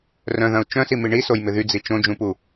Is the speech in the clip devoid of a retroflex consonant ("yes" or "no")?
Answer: no